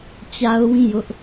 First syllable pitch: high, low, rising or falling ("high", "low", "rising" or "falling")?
high